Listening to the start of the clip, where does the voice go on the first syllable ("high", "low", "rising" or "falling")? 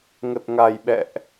low